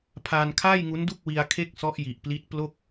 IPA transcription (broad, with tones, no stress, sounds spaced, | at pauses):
pʰ aː˧ n kʰ aː˥˩ j ŋ u˦˥ n d u˥˩ k̚ w i˧ a̯ kʰ e˦˥ k̚ s ɔ˦˥ ʔ j i˨˩ ʔ p l i˦˥ t̚ p l o˥˩ k̚